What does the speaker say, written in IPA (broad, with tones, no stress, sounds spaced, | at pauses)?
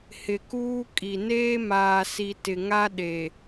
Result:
h ɪ˨ k uː˦ kʼ i˨ n eː˦ m aː˨ s i˨ t ɪ˨ ŋ a˦ ɗ e˨